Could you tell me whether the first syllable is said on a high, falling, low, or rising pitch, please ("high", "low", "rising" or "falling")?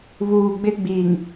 low